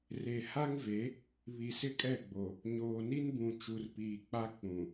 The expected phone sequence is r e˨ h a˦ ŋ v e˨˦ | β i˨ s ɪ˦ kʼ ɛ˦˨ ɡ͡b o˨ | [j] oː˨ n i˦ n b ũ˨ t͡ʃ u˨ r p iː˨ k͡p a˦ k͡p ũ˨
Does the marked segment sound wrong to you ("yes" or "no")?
yes